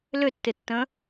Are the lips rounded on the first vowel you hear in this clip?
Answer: yes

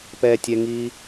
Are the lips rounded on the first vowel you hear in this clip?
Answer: no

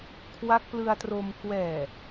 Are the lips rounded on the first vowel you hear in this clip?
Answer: no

